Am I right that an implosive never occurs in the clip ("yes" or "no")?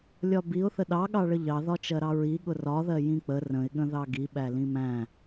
no